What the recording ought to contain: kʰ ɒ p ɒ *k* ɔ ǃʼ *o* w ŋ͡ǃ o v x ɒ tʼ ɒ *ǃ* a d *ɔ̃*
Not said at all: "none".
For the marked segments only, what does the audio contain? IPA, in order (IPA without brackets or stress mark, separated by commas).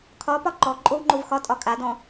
ǃ, o, kʼ, ɔ̃